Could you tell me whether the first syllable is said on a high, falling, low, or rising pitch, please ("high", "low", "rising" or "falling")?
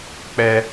high